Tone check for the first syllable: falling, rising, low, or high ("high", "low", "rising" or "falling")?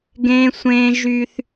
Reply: high